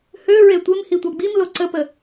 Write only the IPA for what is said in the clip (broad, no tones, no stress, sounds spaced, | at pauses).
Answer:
h ø ɹ e tʷ ɪ m h i tʷ a ɡ͡b i m l o ǀ ə p ə